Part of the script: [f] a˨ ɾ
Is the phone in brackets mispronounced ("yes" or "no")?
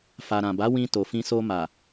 no